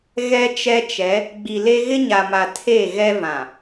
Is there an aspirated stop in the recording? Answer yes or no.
yes